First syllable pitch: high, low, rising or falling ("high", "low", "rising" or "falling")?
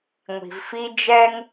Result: low